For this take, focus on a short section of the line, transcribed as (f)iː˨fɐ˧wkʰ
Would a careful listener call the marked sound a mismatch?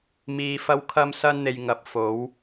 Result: yes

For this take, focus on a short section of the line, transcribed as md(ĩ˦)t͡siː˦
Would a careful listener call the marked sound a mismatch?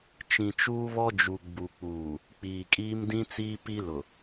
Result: no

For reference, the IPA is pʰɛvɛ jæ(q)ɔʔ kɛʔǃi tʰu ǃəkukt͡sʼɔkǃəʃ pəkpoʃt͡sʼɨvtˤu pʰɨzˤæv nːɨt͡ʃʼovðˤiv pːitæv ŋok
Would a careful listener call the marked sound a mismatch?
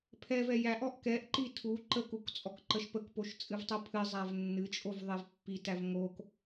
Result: yes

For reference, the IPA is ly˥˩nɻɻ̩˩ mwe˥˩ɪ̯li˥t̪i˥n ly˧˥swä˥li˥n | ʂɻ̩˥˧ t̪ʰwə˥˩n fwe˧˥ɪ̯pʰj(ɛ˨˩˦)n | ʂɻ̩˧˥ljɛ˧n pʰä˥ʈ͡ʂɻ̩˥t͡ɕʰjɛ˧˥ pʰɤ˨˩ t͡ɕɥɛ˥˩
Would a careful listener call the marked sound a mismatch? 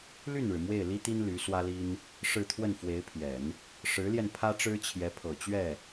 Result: no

